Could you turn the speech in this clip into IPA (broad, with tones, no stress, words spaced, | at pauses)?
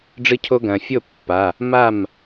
ɖ͡ʐɨ˧cʰo˧ ɡɐ̃˩fʲo˥˩ pːa˩˧˩ | ma˥˩m